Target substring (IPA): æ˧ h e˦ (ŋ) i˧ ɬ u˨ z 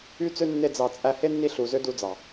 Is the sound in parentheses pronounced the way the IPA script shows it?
no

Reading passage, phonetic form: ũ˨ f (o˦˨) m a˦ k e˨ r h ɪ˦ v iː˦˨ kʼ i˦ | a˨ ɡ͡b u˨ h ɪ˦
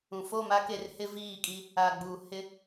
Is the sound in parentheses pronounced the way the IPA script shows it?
yes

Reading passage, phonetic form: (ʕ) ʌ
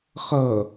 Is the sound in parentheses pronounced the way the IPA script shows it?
no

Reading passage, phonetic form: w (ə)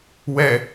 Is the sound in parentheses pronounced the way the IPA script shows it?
no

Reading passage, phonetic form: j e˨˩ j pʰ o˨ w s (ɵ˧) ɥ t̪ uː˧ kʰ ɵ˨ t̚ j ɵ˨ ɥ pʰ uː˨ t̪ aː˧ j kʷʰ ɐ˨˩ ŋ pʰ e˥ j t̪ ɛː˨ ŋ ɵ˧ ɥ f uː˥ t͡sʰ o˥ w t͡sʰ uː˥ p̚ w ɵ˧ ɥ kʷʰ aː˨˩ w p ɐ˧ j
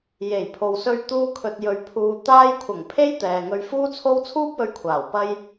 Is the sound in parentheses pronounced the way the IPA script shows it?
yes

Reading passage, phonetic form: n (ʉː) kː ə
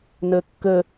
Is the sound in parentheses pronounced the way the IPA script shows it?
no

